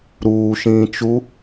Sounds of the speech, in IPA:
ɾ uː ʃ ĩː t͡ʃ u

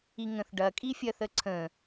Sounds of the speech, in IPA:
i ŋ ə̃ θ ɖ ɐ kʼ i fʲ ɐ θ ə ǀʰ ə̃

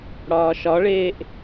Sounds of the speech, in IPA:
ɽ ɒː ʃ ɒ ɭ eː ʔ

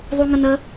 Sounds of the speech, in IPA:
ðˤ u ŋ ə n̪ ə

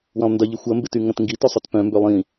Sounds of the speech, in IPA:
w ɐ̃ lˠ n d ɐ ʎ ɪ xʷ ɐ m b ɪ t y ŋ ɐ̃ t ŋ ɡ i t ø sˤ ø t p œ̃ m b ø lˠ ĩ

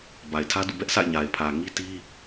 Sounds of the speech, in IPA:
b a˨ ɪ̯ tʰ ä˦ d ṵ˦˨ b ɛ˦ ʔ sʰ a̰˦˨ ɪ̯ ɲ a˨ ɪ̯ pʰ ä˨ ŋ i˦ t i˦

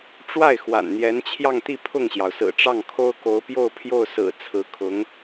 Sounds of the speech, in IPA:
ʈ͡ʂ w a˥˩ ɪ̯ x w a̰˨˩ n n̪ j ɛ˧˥ n t͡ɕʰ j ɑ˥˧ ŋ t̪ i˥˧ pʰ ʊ˥˩ ŋ ɕ j ɑ˩ ʊ̯ s ɹ̩˨˩ ʈ͡ʂ ɑ˥˩ ŋ kʰ o˥ ʊ̯ k o˧˥ ʊ̯ p j o˥˧ ʊ̯ pʰ j o˥˩ ʊ̯ s ɹ̩˨˩ t͡sʰ ɹ̩˧˥ kʰ ʊ˧˥ ŋ

